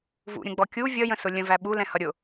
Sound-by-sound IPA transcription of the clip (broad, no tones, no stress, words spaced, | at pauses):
vṵɾʲə̃ɡ͡bɔ kʲu vʲʌjə̃sʊ lʲə̃væ ɓulɛ̃hʌ ɾʲʊ